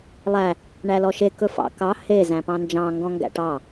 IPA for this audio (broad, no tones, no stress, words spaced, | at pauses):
lˠæ | ɳælɔʃe kɵfɑ̰ kɑ he zæ̃pɑ̃nd͡ʒɑ̃ ŋɡɔ̃ŋɡæ̰ʈɑ